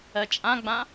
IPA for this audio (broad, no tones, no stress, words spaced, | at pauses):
ɜt͡ʃʼãɡ͡bã